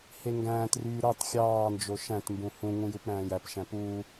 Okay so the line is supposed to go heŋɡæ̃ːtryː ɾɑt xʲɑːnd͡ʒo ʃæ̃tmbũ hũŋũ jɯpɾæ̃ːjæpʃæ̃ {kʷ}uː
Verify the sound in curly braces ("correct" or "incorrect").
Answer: incorrect